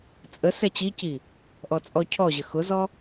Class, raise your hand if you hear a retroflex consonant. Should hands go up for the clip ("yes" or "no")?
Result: no